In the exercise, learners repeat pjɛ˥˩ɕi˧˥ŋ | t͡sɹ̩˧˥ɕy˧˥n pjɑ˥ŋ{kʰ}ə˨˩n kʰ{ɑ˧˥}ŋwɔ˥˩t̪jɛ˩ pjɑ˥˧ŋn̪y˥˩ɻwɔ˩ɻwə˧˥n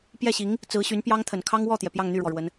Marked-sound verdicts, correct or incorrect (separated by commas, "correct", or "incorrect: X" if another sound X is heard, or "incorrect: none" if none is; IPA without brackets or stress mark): incorrect: t̪ʰ, incorrect: ɑ˥